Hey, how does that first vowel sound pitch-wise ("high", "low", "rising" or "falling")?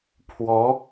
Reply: rising